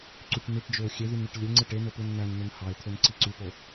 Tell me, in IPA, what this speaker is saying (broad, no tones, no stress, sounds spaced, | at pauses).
ǀ y ʈ n̪ i ʈ d͡ʒ ø ʊ̯ xʲ e ð y n ɳ y ʈ lʲ e ŋ͡ǀ ɯ ʈ e n̪ o p ɯ n n̪ æ n n̪ ø n h ɑ ɪ̯ t̪ʰ ø n ǀ i ǀ y p o